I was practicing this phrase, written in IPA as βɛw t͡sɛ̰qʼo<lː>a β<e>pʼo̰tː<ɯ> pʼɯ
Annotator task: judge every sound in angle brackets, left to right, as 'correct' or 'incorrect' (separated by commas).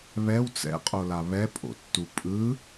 incorrect, incorrect, incorrect